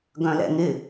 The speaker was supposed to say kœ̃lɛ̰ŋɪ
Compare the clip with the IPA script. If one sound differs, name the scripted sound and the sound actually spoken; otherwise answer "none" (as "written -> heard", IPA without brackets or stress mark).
k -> ɡ